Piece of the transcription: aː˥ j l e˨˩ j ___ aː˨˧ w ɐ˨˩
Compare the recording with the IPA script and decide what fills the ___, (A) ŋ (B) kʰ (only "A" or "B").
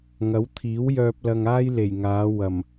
A